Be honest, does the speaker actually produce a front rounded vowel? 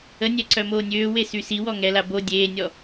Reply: yes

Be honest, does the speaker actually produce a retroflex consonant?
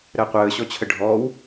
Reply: yes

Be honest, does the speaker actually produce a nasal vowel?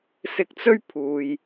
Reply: no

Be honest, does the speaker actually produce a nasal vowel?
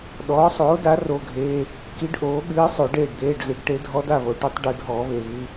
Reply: no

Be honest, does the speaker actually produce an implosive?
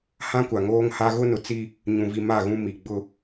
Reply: no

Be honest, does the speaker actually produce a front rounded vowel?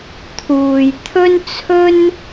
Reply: no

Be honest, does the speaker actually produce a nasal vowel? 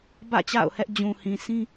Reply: yes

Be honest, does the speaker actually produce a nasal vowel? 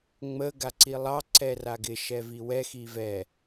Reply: no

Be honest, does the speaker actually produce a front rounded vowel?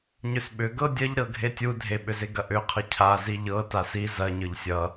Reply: yes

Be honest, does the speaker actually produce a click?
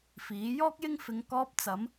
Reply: no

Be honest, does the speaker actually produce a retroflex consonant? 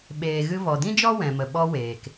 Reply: no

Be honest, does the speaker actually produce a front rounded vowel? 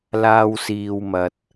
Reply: no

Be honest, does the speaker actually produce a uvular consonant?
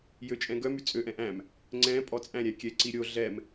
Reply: no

